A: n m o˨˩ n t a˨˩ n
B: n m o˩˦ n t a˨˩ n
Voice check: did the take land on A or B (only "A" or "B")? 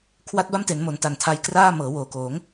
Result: B